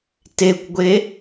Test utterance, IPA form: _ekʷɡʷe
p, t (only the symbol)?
t